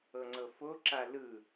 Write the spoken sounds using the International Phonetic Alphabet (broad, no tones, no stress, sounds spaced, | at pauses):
ɤ ŋ͡ǀ ɤ f o ǁ a l ɯ